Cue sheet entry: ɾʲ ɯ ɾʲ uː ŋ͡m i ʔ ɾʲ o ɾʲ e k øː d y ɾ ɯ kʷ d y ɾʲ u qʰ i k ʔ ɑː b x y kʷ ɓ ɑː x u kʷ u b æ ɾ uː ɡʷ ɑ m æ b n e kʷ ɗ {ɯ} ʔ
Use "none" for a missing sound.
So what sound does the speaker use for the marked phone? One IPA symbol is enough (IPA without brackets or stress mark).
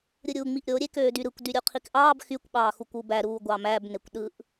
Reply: ɯ